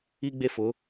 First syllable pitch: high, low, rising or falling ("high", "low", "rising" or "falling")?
high